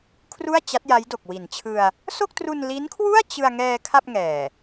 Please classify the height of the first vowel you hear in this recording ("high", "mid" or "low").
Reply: high